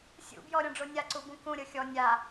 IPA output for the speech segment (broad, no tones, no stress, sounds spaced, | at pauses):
sʲ ṵ b j ɔ ɾʲ ɔ̃ ɖ͡ʐ o nʲ a ǀ u b ũ k ũ ɾʲ ɤ xʲ ɔ nʲ a